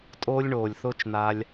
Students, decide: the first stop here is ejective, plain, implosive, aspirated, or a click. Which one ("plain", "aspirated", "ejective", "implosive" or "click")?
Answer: ejective